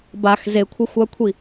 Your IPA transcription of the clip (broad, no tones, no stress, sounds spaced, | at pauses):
b a x z e kʷʰ ɪ xʷ a kʷʰ i